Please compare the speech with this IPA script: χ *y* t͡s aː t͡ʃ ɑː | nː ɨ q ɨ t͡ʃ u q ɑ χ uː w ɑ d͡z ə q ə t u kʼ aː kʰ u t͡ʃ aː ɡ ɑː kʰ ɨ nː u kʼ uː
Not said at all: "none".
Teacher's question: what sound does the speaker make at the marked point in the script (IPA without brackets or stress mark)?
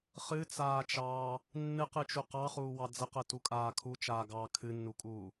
ɨ